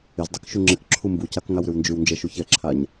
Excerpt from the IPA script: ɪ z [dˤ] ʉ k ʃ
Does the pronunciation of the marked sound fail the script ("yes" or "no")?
no